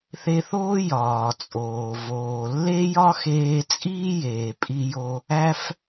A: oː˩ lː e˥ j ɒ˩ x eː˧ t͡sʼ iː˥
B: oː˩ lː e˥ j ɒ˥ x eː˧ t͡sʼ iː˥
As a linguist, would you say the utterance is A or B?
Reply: B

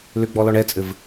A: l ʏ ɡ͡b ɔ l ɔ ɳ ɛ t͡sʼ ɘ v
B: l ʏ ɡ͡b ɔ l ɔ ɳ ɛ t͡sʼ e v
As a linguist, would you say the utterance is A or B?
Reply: A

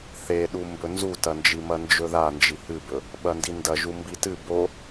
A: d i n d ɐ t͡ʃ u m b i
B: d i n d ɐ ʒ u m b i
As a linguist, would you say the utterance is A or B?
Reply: B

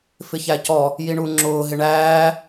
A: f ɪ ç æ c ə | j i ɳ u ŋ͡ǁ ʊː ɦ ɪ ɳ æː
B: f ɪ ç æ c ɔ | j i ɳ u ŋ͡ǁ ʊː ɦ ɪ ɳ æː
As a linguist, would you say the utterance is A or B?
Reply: B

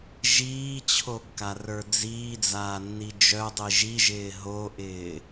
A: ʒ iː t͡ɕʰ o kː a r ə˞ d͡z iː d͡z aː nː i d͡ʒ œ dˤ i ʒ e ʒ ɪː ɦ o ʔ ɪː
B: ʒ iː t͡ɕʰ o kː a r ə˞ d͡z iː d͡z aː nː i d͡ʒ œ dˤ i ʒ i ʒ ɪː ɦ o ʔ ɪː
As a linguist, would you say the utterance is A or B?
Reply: B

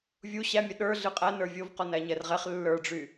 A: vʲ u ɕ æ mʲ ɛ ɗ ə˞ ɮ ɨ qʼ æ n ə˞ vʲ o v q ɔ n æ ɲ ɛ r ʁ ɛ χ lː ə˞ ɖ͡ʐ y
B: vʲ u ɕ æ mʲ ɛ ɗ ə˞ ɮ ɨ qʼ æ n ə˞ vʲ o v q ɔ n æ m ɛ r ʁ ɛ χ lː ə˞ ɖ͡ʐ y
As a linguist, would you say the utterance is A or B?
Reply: A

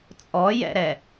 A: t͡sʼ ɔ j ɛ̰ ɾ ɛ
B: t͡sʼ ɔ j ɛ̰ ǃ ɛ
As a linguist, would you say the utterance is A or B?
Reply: A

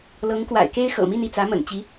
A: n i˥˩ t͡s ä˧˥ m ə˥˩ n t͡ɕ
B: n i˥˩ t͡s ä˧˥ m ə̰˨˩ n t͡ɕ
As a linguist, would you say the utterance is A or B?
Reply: B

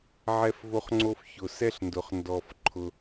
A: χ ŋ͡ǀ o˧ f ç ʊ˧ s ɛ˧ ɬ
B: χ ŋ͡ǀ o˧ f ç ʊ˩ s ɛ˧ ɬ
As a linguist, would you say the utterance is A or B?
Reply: B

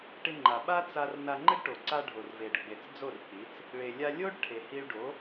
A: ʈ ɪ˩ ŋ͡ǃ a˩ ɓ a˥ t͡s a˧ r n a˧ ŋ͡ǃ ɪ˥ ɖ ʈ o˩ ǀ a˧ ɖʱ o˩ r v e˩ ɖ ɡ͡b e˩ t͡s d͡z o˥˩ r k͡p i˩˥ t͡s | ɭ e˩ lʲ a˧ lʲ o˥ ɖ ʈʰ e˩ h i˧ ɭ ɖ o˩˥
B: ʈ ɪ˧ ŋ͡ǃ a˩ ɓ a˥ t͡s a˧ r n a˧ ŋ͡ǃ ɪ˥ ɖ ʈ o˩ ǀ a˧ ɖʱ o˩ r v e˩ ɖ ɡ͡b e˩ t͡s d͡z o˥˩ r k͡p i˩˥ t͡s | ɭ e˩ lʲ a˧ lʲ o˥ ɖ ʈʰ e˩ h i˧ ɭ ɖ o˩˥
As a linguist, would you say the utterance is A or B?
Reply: B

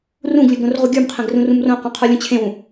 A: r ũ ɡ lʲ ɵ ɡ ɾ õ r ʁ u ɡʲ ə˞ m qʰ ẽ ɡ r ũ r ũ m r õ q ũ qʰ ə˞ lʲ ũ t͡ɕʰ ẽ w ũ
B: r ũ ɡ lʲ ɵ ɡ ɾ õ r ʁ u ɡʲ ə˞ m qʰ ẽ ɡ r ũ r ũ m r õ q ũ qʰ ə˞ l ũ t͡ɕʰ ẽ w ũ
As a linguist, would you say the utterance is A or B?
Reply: A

